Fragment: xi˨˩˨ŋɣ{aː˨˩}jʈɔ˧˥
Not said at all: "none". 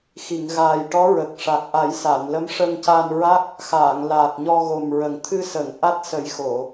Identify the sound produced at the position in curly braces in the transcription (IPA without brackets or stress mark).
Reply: aː˨˩